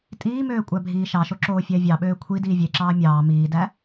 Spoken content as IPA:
tʼ iː m øː kʷʼ æ bʱ iː ʃ ɑ ʃ o ǁ oː fʲ æ vʲ ɑ ɓ øː kʷʰ i d iː vʲ e ǁ ɑː mʲ ɑː m iː d æ

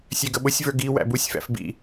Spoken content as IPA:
sʲ ɛ ɡ ə ɓ ʊ sʲ v ə˞ ɡ i w æ̰ b u sʲ f æ̰ f b ḭ

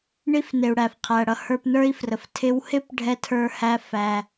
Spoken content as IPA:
ɳ i˧ f n ɪ˩ u̯ ɽ æ˩ f qʰ æ˩ ɽ ʌ˧ h ə˞˧ p n ə˞˥ i̯ f r ə˩ f tʰ ɪ˧ w h ɪ˥ p ɖʱ ɛ˥ tʰ ə˞˥ h æ˥ f æ˧

